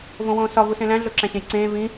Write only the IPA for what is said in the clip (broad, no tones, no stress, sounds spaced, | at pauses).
v õ w õː s ɒ v u s ẽ l æ̃ ɮ o ǁ æ̃ ɕ ẽ j ǀ ẽː v ĩ